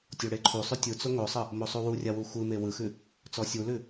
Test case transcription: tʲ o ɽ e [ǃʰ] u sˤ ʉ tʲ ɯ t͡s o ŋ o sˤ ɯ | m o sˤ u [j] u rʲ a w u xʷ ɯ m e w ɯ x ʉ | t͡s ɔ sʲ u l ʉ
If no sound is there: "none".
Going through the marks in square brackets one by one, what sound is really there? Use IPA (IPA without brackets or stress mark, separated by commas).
ǃʰ, w